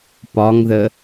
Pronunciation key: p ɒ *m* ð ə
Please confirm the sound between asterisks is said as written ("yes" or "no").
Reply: no